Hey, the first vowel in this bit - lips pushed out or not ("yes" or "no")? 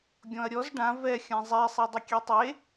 yes